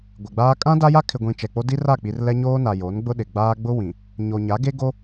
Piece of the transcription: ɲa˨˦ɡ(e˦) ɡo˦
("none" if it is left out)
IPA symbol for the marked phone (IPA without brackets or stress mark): e˦